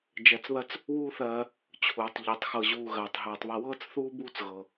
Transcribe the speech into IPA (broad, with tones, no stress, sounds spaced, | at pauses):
d͡ʒ ɜ˧ t͡s β ɜ˦ t͡s | w uː˦ θ ɜː˧ | t͡ɕʰ uː˨ tˤ ʎ ɜ˨˦ tˤ x ɤ˧ ʑ uː˧ ɣ ɜː˨ tˤ ɦ ɤː˨ tˤ β ɐ˧ w ɤː˦ t͡s θ uː˦ b uː˦ t͡s ɣ ɤ˨